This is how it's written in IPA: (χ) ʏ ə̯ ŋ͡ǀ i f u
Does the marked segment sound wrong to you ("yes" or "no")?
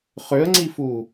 no